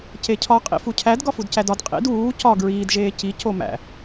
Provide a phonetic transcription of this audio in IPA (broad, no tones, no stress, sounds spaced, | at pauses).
c e cʰ ɒ qʼ ḭ f u cʰ æ d ɡ ɒ f u d c æ d ɒ d qʼ ḭ d uː c ɒ ɡ ɹ iː d ʒ eː c i c o m æ̰